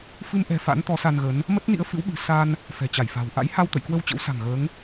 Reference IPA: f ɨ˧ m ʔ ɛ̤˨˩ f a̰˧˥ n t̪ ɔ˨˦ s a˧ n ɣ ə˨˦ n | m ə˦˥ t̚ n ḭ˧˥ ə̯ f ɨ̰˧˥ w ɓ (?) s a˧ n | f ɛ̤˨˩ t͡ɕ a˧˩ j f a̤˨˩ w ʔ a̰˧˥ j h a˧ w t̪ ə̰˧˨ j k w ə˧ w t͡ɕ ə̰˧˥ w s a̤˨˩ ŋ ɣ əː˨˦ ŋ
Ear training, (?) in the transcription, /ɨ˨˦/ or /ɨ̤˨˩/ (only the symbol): ɨ̤˨˩